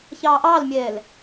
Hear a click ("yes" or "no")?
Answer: no